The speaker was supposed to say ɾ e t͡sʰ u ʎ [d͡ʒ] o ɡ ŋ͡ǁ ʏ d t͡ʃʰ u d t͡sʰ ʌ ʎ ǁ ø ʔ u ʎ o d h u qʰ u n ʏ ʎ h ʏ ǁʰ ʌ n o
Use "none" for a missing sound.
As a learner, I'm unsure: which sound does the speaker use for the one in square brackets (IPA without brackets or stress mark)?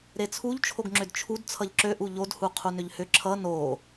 t͡ʃʰ